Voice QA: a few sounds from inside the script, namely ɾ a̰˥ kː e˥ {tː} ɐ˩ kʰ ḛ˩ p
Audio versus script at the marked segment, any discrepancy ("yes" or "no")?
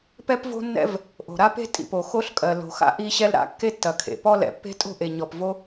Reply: no